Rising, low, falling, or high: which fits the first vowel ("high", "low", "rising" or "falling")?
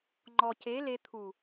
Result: low